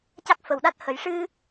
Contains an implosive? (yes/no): yes